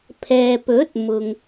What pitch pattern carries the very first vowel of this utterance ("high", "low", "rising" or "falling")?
low